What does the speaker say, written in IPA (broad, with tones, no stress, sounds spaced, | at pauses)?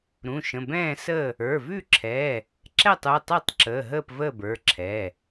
ɾ ũ˩˧˩ ʃ ə̃˩˧˩ b ɛ̃ː˥˨ s ə˥˨ | ə˞˩˧˩ v ʉ˥˨ ǁʰ ɛ˩˧˩ | ǁ ɛ˥˨ tˤ u˩˧˩ tˤ u˥˨ tˤ ǁ əː˩˧˩ ɦ əː˥˨ p v əː˥˨ b ə˞˩˧˩ ǁʰ ɛ˩˧˩